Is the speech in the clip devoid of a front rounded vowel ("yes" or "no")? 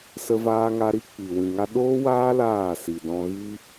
yes